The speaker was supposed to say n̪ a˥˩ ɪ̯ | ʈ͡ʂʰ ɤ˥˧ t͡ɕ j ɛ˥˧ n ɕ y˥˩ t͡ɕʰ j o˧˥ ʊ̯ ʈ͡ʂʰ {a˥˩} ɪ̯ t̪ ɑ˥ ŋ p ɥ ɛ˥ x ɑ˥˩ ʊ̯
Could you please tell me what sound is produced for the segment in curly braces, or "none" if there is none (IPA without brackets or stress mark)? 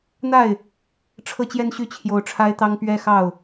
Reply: a˥